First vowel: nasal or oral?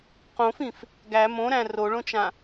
nasal